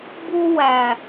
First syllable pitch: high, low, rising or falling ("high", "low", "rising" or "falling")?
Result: high